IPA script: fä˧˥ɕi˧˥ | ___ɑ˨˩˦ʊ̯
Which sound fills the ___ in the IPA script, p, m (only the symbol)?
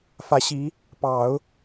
p